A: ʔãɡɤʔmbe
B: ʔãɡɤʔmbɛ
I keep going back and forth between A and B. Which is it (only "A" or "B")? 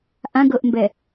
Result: B